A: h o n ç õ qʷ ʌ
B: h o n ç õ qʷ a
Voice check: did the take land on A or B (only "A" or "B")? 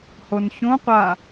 B